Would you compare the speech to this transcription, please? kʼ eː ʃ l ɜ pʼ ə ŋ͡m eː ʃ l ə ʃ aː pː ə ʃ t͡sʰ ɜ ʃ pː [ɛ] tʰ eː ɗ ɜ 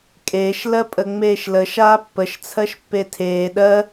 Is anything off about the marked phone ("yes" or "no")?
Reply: yes